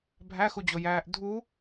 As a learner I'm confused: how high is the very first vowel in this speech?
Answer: low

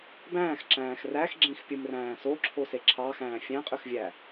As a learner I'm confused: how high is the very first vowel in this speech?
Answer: low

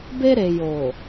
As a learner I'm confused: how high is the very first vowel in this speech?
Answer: mid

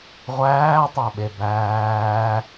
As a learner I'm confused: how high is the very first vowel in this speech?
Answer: low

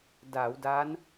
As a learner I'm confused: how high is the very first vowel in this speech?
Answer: low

